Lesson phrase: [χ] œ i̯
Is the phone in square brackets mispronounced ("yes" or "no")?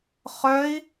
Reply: no